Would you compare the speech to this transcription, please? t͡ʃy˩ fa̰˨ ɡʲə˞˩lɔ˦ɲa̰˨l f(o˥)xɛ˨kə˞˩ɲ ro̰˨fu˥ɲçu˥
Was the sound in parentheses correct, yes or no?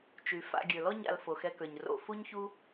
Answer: no